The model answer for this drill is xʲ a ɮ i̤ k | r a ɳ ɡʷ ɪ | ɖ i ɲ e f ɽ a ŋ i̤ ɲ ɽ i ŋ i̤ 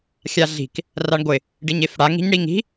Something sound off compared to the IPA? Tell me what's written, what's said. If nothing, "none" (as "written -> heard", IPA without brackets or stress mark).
none